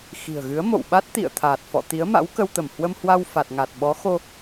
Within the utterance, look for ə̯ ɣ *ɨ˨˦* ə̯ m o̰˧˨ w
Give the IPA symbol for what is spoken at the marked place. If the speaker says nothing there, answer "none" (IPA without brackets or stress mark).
ɨ˨˦